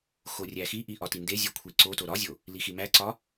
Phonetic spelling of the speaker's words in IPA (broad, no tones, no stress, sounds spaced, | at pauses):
x o rʲ æ x i ʔ i ʔ ɒ t i n d e zʲ u kʷʰ i ǀ o t o ɾ ɒ zʲ o | l i x i m æ ǀ ɒ